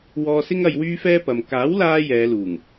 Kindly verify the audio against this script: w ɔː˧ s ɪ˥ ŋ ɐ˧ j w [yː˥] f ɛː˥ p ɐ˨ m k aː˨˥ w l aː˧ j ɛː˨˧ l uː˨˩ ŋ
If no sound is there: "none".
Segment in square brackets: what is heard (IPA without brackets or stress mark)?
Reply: yː˥